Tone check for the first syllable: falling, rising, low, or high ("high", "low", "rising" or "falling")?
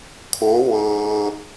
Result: rising